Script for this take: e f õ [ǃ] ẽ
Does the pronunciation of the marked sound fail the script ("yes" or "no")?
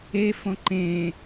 no